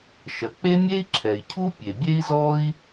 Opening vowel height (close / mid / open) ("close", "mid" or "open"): open